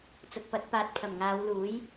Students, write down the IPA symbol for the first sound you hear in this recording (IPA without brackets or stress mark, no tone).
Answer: t͡s